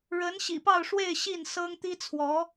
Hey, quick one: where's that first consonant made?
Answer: retroflex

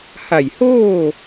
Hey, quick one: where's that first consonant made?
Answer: throat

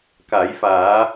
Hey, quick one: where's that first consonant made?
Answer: velum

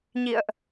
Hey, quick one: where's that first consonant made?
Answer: palate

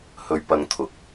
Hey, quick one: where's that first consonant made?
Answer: throat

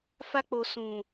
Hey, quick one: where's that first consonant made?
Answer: lips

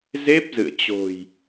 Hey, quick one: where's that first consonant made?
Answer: tongue tip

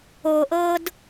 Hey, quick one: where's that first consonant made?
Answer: throat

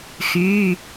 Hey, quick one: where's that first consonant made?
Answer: velum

